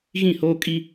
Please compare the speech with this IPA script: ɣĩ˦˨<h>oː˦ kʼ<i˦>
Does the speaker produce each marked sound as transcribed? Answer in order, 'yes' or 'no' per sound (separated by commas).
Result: yes, yes